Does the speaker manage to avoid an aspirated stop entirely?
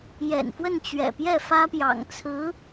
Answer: no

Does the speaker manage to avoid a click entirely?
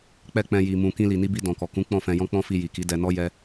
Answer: yes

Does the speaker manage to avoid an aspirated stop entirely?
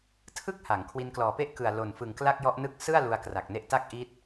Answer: no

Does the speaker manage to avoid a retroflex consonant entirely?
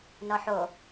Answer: yes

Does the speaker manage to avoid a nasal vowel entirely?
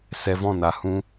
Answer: no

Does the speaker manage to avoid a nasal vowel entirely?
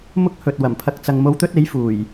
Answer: yes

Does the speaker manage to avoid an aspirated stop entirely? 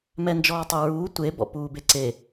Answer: yes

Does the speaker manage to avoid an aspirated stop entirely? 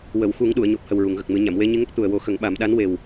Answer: yes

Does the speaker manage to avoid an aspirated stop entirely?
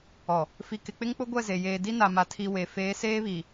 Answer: no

